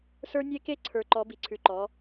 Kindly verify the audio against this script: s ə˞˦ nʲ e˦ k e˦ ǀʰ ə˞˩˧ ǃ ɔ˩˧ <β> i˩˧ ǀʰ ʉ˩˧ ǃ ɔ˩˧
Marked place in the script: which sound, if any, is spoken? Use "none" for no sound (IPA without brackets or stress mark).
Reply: b